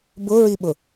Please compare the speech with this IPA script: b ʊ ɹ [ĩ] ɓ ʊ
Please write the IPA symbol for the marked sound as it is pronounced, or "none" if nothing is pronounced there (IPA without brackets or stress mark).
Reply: i